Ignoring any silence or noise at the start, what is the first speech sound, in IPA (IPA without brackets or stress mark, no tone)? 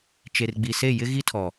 t͡ʃ